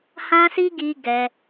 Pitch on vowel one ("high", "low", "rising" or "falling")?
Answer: high